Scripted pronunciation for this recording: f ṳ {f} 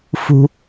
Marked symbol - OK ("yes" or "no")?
no